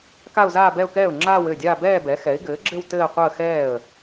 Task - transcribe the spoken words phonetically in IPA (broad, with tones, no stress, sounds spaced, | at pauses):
k a˥˧ ʊ̯ z aː˥˧ b ɛ˥˧ ʊ̯ k ɛː˥˩ ʊ̯ ŋ͡ǁ aː˥˧ w ɘː˥˩ dʲ aː˥˧ b ɛː˥˧ b ɛ˩˥ x ɛ˩˥ ɪ̯ ɡ ɘː˩˥ ɡ͡ǁ ɘ˥˧ w t ɘː˥˧ qʷ əː˥˧ x ɛː˥˩ ə̯